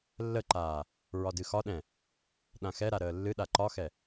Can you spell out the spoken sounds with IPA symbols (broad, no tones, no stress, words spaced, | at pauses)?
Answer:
lːəǃaː | ɹɒdɨxɒɗɛ̃ | ɗãxɛɾa ɾəːlːɨɗa ǃɒxɛ